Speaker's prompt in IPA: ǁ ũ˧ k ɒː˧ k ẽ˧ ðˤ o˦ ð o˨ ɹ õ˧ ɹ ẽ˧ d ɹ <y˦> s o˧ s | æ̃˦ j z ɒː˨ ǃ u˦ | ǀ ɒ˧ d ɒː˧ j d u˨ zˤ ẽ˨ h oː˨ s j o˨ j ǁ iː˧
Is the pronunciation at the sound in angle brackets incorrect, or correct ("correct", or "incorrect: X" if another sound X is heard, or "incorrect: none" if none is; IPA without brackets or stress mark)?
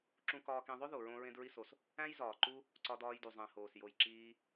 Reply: incorrect: i˦